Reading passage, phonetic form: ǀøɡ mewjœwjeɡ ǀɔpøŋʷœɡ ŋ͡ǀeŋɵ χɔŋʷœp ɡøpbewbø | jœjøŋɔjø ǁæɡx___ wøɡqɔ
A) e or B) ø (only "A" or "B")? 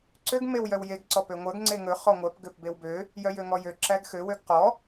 B